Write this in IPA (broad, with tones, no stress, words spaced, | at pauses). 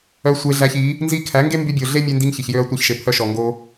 œ˧sʷe˧ɮæ˧çi˨˦ | nzi˧kʰæ˨˦ ŋɡe˦mby˧bʲo˨ ɮe˦mʲe˧ndi˧ŋ çi˨ç jø˧ɐ̯ tʷɑ˧çʃe˨pʰœ˧ʃɔ˨ ŋɡo˧